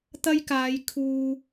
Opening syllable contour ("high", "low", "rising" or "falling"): high